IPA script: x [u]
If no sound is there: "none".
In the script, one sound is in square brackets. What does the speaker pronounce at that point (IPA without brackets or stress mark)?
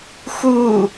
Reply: u